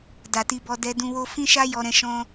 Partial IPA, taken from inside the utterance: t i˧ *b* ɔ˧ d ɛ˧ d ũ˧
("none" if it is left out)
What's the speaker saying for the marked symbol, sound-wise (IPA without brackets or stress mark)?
b